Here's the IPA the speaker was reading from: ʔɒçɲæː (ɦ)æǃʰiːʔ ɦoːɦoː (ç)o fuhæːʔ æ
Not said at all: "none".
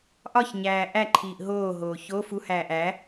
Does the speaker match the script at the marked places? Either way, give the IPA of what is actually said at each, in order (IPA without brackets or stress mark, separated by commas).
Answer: ʔ, ç